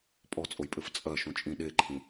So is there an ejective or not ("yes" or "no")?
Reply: yes